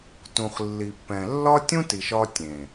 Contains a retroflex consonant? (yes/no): no